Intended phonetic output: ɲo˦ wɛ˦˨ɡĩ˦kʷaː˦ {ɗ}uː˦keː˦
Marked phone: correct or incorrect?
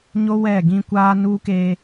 incorrect: n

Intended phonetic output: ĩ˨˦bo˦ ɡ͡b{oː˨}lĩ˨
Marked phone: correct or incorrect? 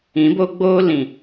incorrect: oː˦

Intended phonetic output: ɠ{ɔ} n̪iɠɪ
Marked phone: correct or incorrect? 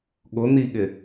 incorrect: ʊ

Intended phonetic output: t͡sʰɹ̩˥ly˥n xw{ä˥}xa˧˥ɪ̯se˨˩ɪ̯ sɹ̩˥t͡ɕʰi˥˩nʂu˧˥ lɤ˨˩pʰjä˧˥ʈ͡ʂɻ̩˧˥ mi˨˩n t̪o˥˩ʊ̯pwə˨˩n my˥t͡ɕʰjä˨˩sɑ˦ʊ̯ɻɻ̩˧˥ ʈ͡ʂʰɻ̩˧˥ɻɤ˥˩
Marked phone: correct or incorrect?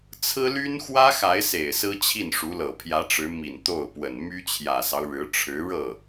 correct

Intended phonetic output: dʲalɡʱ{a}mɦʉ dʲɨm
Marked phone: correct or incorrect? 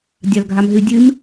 correct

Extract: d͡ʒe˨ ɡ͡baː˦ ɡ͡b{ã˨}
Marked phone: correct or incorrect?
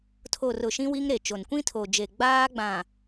correct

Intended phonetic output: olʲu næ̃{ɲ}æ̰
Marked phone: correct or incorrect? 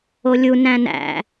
incorrect: n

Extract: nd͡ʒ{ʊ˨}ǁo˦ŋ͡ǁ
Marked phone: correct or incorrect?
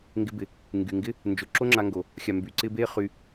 correct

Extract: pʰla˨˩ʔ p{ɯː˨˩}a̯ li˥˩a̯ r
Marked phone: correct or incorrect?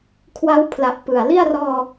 incorrect: ɯ˨˩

